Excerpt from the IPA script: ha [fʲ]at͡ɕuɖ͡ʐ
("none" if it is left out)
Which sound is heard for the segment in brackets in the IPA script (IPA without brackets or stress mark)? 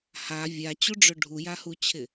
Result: vʲ